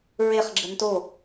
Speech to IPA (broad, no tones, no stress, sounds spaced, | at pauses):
ɹ e χ ɡ͡ǁ ə n t o